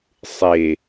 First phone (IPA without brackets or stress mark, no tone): sˤ